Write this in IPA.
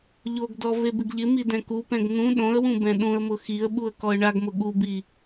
ʎ o ɡ d ɔ v e b ɪ ɡ ʎ ɪ m i d ɛ̃ k u p ɛ̃ ɡ n̪ ũ ɗ õ ə̯ w ũ b ɛ̃ ɗ ũ ə̯ m ʊ x i ə̯ ɓ u ə̯ k ɔ ə̯ ɳ a ɡ m ʊ ɠ u b i

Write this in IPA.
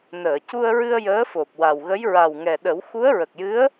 n əː˨˩˨ c u˧ ə̯ ɹ ɨ˧ ə̯ j əː˧˥ f o˨˩ p̚ w a˨˩ w ɣ ə˧˥ j ɹ a˨˩ w ŋ ɛ˨˩ ɗ ə˨˩˦ w x u˧˥ ə̯ ɹ ə˨˩ k̚ j ɨ˧˥ ə̯

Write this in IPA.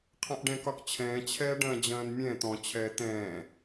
qʰ ɐ̃ ʔ ɖ ɛ̃ k ɒ k t͡ɕʰ ɛ̃ː t͡ɕʰ ɛː ɖ ɐ̃ː d͡ʑ ɐ̃ː n mʲ ɛ̃ t̪ ɔ̃ t͡ɕʰ ɛː t̪ ɛ̃ː

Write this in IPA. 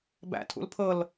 b æ̰ tʰ ṵ l pʰ ɤ l

